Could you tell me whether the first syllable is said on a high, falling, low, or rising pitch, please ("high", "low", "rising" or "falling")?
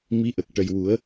rising